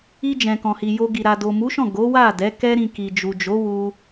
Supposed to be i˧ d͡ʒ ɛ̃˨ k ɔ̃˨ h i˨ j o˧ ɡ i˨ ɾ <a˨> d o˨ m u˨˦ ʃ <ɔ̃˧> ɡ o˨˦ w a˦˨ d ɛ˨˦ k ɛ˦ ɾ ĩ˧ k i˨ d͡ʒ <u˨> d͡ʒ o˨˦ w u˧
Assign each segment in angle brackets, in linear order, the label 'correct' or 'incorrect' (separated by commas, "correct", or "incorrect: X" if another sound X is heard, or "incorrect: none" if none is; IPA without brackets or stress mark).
correct, incorrect: ɔ̃˦˨, correct